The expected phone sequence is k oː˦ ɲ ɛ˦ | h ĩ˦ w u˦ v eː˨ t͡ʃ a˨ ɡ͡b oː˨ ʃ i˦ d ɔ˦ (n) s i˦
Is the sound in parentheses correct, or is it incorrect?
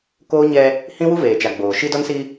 correct